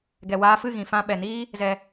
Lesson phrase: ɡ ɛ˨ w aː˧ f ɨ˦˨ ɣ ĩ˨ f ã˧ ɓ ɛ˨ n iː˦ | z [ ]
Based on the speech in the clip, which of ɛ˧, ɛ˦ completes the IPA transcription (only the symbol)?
ɛ˧